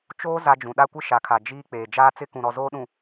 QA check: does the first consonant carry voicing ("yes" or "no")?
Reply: no